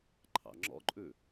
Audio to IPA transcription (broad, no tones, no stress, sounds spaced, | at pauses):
ǃʰ ɑ̰ ŋ͡ǁ ɔ̰ ǃʼ ʉ